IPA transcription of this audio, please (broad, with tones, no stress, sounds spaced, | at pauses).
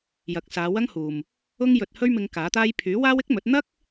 j ɐ˨˥ k̚ s aː˨˧ w ɐ˥ ŋ h uː˨ m | ʊ˥ ŋ j ɵ˧ t̚ h ɵ˥ ɥ m ɪ˧ ŋ k aː˨˥ t̪ aː˥ j pʰ yː˨˥ w aː˥ w ɪ˥ k̚ m ɵ˨˥ t̚ n̪ ɐ˥ k̚